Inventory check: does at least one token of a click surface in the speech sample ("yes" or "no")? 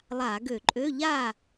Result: yes